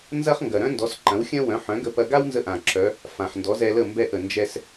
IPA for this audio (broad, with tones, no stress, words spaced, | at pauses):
nzɐ˥χ ŋɡɐ˩ɾœ̃˥ndɔ˩˥s ǃɐ̃˩˥wxʲɐ̃˥wœ̃˩˥ ħœ̃˩˥ɡə˧pɐ˧ ɡa˥wnzə˧ʔã˩ ǁœ˩˥ | fã˩ħ ndɔ˩˥zɛ˧lə˥˩ mbɛ˥˩ʔə˩ nd͡ʒɛ˧s